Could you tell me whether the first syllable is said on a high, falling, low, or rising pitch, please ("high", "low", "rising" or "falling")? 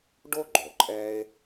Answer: high